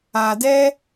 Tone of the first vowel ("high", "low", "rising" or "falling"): low